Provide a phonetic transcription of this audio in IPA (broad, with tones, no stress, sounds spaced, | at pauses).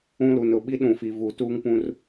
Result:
ũ˦ l u˨ n ʊ˦˨ ɓ i˦ ɗ ũ˨ f i˨ v u˨ t uː˦ ŋ p ũ˦ r